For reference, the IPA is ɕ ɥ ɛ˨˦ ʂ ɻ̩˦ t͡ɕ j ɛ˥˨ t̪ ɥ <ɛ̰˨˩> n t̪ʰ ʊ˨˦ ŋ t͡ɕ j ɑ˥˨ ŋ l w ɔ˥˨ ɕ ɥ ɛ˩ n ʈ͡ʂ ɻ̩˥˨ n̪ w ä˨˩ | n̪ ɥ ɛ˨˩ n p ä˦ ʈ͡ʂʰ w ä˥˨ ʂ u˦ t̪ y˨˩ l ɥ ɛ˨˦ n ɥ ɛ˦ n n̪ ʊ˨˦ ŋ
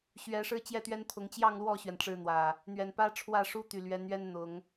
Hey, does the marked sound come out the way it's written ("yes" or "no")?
no